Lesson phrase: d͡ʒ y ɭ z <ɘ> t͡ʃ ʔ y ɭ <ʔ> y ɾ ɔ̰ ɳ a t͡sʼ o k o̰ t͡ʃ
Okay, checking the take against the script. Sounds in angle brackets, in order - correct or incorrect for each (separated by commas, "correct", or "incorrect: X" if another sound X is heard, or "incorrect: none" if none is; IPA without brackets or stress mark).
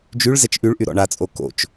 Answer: incorrect: ɛ, correct